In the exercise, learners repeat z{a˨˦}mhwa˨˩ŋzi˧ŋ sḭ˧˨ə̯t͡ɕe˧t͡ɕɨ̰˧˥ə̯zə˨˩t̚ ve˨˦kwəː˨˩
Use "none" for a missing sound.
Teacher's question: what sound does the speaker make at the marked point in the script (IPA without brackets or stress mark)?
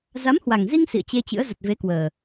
a˨˦